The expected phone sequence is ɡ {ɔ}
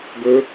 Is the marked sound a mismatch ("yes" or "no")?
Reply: yes